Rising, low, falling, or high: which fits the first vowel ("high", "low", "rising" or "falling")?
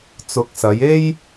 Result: rising